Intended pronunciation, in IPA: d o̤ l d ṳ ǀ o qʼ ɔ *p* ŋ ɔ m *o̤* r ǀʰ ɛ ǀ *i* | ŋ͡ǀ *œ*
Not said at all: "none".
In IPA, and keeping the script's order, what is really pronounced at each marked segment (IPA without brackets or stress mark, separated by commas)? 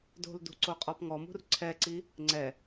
p, ṳ, i, ɛ